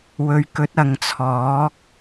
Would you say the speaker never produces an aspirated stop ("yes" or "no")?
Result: no